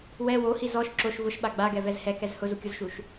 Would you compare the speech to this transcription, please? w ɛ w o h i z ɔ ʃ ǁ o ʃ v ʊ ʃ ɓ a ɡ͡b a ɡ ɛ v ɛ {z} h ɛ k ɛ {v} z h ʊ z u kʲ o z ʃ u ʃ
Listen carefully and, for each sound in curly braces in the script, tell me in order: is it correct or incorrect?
correct, incorrect: none

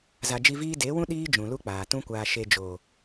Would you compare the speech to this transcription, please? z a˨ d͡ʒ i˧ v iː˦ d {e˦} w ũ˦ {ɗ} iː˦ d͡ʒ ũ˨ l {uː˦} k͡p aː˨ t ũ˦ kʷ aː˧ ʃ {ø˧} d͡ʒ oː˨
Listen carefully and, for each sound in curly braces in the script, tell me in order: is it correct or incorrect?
incorrect: e˨˦, correct, incorrect: u˦, incorrect: e˧

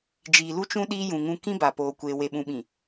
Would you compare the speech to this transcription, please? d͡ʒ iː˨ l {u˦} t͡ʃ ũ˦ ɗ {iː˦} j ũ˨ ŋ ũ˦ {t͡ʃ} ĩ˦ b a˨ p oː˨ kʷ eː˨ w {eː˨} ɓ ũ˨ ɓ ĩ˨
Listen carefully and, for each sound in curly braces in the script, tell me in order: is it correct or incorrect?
correct, correct, incorrect: k, incorrect: e˨

